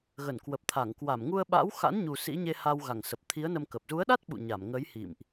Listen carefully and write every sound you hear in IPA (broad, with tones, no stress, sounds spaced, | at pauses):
ɣ ə˧˩ n k w ə˨˩ p̚ t̪ʰ a˧˩ ŋ k w a˧˩ m ŋ u˧ ə̯ ɓ a̰˧˥ w x a̰˧˥ n ɲ u˨˩ s ḭ˧˥ ɲ e˧ h a˧ w ɣ a˧˩ ŋ s ə˨˩ p̚ t̪ʰ i˨˦ ə̯ n ə˧ m k ə˨˩ p̚ z u˨˦ ə̯ ɗ a˦˥ t̚ ɓ ṵ˧˨ ɲ a˧˩ m ŋ ə˨˦ j h ḭ˧˨ m ʔ